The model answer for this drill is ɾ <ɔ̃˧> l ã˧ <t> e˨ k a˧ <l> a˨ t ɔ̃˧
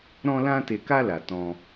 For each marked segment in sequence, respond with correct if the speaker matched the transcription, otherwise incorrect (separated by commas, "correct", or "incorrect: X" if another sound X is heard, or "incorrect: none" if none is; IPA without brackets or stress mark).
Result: correct, correct, correct